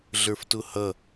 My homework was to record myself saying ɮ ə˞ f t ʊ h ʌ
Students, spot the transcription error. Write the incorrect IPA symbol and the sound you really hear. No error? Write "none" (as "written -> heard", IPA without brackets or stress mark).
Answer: none